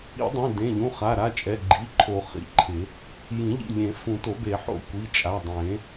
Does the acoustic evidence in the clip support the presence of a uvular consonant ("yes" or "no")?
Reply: yes